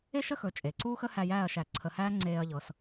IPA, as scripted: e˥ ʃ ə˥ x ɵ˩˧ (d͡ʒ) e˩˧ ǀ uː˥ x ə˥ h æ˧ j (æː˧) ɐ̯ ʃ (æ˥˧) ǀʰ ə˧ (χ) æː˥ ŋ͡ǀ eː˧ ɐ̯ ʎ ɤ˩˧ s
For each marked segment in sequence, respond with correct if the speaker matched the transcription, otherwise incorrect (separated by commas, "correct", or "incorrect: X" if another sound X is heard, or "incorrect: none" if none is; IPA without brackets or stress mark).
incorrect: t͡ʃʼ, incorrect: æː˥˧, incorrect: æ˧˩, incorrect: h